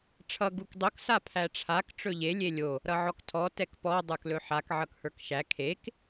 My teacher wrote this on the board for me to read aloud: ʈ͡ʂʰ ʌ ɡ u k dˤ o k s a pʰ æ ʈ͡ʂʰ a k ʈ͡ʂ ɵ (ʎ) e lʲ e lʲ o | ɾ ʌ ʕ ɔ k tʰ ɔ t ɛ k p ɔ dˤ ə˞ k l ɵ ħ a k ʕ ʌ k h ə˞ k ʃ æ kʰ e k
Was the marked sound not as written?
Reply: no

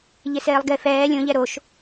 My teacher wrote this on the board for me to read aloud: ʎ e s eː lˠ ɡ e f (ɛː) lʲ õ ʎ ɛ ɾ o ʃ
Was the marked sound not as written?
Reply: no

